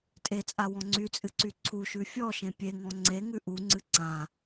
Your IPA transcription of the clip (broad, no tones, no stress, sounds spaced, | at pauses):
tʼ e t͡sʼ a w ɔ̃ ŋ͡ǀ y t͡sʼ ɨ ǀ y ǀʰ u ʃ ʉ fʲ ɔ ʃ ẽ pʲ e ŋ ɔ̃ ŋ͡ǀ e ŋ ʉ ʔ u ŋ͡ǀ ɨ ǀ ã